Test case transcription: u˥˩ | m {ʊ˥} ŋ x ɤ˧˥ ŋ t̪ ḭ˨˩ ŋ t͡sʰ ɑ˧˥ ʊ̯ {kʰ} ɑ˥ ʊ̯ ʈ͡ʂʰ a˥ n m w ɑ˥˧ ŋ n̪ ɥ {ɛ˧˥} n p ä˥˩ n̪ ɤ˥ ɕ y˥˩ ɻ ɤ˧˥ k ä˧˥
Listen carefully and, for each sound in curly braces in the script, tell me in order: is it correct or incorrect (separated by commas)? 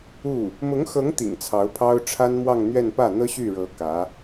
incorrect, incorrect, incorrect